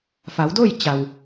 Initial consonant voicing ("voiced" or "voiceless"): voiceless